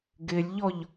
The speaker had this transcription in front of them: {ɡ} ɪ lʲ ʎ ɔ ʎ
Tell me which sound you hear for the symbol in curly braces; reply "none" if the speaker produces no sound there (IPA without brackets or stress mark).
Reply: ɡ